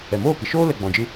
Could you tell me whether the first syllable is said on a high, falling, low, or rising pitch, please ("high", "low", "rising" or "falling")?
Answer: low